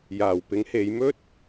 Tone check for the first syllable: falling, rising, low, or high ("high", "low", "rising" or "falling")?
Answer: low